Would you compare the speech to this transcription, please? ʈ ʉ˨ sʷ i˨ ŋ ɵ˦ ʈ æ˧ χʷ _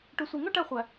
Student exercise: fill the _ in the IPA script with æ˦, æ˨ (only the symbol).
æ˨